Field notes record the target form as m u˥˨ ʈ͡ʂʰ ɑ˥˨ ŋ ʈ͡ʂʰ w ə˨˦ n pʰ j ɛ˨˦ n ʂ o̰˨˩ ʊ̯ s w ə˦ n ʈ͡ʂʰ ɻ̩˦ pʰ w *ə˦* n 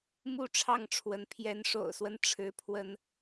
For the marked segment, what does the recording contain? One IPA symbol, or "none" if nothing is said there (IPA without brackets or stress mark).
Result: ə˦